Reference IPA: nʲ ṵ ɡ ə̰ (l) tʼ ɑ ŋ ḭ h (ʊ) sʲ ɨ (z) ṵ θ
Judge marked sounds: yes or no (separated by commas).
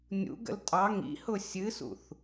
yes, yes, no